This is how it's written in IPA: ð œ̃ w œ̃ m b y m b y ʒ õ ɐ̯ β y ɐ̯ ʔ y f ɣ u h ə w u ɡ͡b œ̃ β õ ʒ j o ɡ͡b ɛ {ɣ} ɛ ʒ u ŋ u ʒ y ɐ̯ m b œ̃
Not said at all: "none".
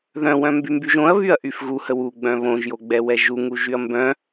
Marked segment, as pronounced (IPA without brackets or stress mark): w